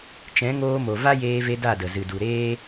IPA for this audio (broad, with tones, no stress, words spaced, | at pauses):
t͡ʃɛ̃˨˦ŋoː˧mo˨ va˦jeː˧ve˧ da˦˨də˨zɨ˨ du˨ɾeː˦